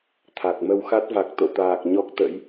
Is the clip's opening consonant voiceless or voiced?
voiceless